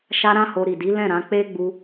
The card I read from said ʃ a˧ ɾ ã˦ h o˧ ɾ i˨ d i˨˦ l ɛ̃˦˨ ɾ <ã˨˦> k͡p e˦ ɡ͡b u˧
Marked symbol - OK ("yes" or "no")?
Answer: yes